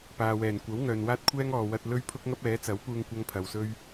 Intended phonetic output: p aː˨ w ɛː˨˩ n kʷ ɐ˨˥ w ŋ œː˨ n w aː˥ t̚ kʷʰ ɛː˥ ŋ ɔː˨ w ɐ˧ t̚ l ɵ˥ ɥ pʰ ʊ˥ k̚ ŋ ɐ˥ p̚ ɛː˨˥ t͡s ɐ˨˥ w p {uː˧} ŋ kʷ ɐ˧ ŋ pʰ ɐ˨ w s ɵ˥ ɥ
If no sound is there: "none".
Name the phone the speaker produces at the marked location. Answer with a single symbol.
uː˧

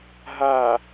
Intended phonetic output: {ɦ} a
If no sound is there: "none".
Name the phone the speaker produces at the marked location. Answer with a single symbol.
ɦ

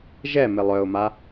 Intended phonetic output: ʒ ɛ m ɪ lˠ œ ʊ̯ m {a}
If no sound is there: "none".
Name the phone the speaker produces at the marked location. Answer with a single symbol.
a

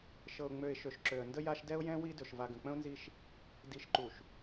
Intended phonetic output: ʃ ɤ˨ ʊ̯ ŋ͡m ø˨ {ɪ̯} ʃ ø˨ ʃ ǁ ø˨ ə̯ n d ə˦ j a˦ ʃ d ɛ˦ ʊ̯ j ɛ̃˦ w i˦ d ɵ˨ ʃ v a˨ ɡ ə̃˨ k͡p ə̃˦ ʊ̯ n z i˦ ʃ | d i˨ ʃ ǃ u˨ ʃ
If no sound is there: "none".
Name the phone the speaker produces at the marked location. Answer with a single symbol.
ɪ̯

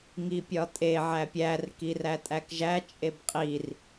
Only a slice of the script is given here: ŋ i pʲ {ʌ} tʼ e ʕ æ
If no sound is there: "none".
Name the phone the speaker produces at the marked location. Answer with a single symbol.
ɒ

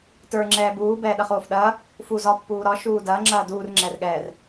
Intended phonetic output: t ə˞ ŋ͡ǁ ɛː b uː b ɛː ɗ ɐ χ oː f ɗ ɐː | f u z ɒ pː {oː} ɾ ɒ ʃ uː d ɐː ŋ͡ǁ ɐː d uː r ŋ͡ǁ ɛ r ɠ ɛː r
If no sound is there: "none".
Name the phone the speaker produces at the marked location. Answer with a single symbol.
uː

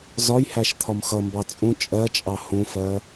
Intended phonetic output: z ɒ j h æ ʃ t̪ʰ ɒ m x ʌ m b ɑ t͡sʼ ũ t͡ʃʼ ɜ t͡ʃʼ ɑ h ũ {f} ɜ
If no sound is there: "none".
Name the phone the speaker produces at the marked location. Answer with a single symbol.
f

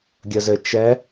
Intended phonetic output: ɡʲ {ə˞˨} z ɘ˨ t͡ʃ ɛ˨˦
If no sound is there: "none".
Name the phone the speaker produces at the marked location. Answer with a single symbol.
ə˨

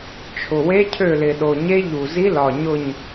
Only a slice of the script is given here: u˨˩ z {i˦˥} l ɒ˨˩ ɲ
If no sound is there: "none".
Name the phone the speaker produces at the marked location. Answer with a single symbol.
i˦˥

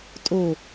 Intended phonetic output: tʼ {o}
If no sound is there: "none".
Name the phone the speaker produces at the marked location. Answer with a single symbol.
o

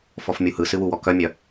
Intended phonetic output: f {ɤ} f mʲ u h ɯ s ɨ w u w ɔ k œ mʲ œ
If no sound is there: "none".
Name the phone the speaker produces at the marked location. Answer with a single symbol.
ɔ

